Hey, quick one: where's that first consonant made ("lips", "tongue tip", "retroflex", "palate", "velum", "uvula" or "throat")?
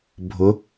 lips